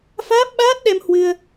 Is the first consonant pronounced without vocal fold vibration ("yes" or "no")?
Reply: yes